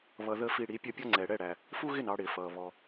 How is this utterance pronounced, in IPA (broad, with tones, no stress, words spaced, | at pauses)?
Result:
βʌ˧ ðə˥ fi˧ ɽi˩˥pʲʌ˥pʲɔ˥ ŋ͡ǀɛː˩ɽɛ˥˩ɽæ˩ | fu˥ɣɪ˥˩n ɑ˧ɽɪː˩fʌː˩ βɔ˩